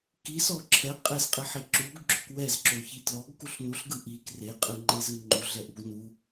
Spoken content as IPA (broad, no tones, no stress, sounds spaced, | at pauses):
k i s ɔ ǁʰ ɛ qʼ ɛ s qʼ e ħ i ǁ u ɡ ɡ͡ǁ o k w ɛ z ǁ o ç i t l ɔ ɡ k u ɬ n u ɬ ɡ ɯ ʔ i k r e qʼ ɯ ŋ͡ǃ e z ɯ ŋ͡ǃ u ɮ ɛ ʔ u ɡ n u